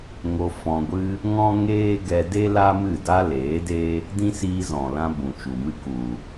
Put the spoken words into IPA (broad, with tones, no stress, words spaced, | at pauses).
ŋo˧ fɔ̃˧ɡʷɨ˦ | ŋɔ̃˦ŋeː˦ɡɛ˧de˦ la˦mɨ˦˨ da˦leː˨˦ de˦ | dĩ˦siː˧zɔ̃˨lã˧ bũ˨t͡ʃu˨mɨ˧ ku˨